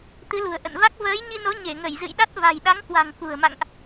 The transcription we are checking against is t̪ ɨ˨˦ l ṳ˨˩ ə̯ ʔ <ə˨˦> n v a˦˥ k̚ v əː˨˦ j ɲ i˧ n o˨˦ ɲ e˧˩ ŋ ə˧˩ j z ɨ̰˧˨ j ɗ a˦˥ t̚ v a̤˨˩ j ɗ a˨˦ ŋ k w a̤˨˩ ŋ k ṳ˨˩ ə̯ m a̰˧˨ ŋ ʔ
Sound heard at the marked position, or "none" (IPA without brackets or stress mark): ə̰˧˨